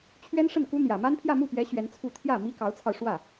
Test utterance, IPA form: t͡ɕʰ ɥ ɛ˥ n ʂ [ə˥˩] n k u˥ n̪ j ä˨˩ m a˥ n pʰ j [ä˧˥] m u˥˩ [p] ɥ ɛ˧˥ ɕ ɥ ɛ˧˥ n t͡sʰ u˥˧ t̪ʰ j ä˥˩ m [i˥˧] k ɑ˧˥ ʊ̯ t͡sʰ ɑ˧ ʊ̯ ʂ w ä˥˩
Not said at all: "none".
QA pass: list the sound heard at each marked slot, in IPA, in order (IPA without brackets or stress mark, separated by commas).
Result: ə˥˩, ä˥˧, p, i˥